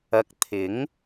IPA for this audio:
ɐ˧ k̚ t̪ʰ ɪ˨˥ ŋ

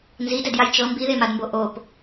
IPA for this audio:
n z i d ɛ d j a j t͡ʃ ɤ m b i ð e m a d m b o ʔ o p

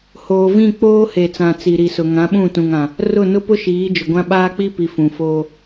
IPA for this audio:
h oː˨ v ĩ˦˨ k͡p oː˦ h e˨ t͡s ã˨ t͡s i˨ ɾ i˨ s ʊ˨ ŋ ã˨˦ ɓ ũ˦˨ t ũ˨ ŋ ã˨ | r ʊ˦˨ n ʊ˦ p ʊ˦ ʃ iː˨˦ d͡ʒ ʊ˨ ɡʷ ã˦ ɓ aː˦ k͡p i˦ p i˨ f ũ˨ f oː˦

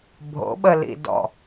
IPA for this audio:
bʱ o̰ ɓ ə l ḭ d ɔ̰

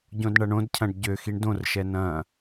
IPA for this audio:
ɟ õ d ɳ ɐ ɳ õ d cʰ ɐ̃ ɖ ɟ ø x i ɳ d õ r ʃ ɛ n ɐ̃

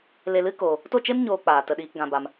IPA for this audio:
l e˧ l ɨ˦ k oː˧ | t o˦˨ t͡ʃ e˦ m ɲ oː˧ k͡p aː˨ t ə˧ ɗ iː˧ k ɡ ã˧ b a˧ m

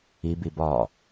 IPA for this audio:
i b i b ɒ

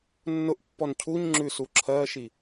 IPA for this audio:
nː ʊ ʔ pː ɔ n cʰ u ɲ ŋ͡ǁ ʉ s u ǁʰ ɜ ʃ i

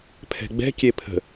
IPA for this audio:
pʰ ɛ̤ ɡ͡b ɛ̤ kʲ e pʰ ə̤

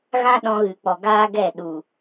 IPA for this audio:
ɣ ã˦ ɗ ɔ̃˧ ɣ ɨ˨ k͡p ɔ˨ ɡ aː˦ ɡ ɛ˦˨ ɗ u˨

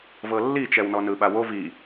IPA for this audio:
v ɤ lː i t͡ʃ ɛ w n ɔ n ɯ ɓ a w o v i

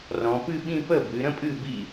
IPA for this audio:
r ɔ̃˩˧ p ɨ˥˧ ɓ ĩ˥˧ p ə˥˩ b ɨ˩˧ ɾ ə̃˥ pʼ ɨ˥˩ b ḭ˥˩

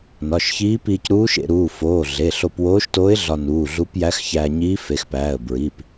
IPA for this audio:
n ɒ˩˧˩ ʃ ç iː˧˥ p iː˧ c ɾ uː˧˥ ʃ ḛ˧ ɾ uː˩˧˩ f oː˩˧˩ ɮ e˩˧˩ ɬ o˧ p w oː˧˥ ʃ t oː˧˥ ɪ̯ ɮ ɒ˧ n uː˩˧˩ ɮ u˧˥ p j æ˧˥ x ç æː˧ ɲ iː˧˥ f e˩˧˩ x p æː˩˧˩ ə̯ b ɹ iː˩˧˩ p

